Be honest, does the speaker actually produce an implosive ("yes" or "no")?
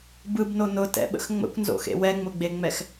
yes